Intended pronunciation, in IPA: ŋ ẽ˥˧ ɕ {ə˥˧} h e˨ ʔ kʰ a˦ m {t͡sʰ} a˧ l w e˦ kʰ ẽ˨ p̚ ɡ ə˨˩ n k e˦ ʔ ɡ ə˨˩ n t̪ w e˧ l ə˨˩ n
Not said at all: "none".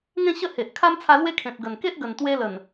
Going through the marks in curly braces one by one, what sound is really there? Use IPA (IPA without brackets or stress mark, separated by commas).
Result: ə˥˧, t͡sʰ